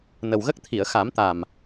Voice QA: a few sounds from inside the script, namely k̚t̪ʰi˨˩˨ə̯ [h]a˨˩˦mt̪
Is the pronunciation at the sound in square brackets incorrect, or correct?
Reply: incorrect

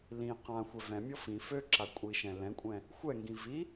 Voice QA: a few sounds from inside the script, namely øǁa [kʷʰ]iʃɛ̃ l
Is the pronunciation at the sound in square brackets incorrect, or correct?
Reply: incorrect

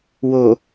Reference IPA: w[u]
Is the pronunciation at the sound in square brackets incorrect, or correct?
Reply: incorrect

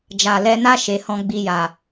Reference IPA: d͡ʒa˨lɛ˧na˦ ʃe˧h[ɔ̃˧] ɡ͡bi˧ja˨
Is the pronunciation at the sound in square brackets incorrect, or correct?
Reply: incorrect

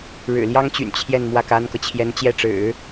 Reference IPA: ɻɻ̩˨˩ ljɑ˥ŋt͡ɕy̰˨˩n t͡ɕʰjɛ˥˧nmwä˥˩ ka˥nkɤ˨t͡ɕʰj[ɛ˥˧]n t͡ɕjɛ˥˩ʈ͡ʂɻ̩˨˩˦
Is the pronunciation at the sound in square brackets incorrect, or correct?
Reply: incorrect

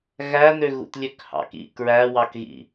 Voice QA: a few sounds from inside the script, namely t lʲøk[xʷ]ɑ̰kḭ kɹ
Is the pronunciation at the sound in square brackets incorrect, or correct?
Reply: incorrect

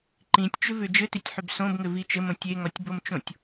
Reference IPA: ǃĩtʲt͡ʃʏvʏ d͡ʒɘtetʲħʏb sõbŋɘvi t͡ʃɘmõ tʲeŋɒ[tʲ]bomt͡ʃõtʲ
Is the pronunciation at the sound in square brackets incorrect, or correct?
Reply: correct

